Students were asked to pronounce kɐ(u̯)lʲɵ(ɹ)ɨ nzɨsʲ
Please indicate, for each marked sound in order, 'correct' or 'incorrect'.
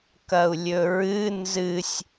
correct, correct

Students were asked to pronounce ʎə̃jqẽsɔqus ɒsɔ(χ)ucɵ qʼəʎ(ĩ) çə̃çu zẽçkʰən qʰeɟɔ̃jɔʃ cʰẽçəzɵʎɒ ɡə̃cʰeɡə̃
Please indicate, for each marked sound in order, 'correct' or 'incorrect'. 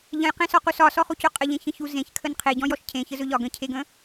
correct, incorrect: ẽ

